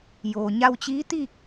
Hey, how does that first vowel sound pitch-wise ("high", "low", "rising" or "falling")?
low